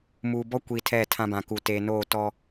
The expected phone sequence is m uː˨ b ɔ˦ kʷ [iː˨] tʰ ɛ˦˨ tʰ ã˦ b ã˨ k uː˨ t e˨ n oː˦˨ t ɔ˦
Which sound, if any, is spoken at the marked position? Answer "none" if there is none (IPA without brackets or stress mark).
iː˨